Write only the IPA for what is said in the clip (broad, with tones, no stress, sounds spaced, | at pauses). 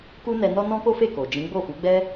k u˦ n ɛ˧ n ɔ˦ n ɔ̃˦ k o˦ f e˦˨ k o˨ d͡ʒ ĩ˨˦ ɡ͡b o˦˨ f u˨˦ ɡ͡b ɛ˦